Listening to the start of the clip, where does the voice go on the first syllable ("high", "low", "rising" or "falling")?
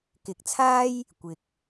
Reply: rising